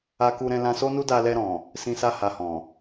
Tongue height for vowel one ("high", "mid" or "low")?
low